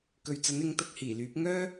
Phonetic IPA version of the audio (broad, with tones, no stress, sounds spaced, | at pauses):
k ɵ˨ ɥ t͡s ɐ˨˥ n ɪ˨˥ ŋ t̪ ɐ˨˥ k̚ h iː˨˩ l yː˨˥ p̚ ŋ œː˥